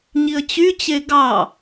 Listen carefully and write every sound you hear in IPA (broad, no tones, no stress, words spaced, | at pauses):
ɲiə̯t͡ɕyt͡ɕe ɡɑ